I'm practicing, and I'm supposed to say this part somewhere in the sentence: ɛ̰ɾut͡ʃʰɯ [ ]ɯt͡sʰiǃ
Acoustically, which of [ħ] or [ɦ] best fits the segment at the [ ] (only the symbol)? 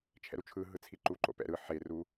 ɦ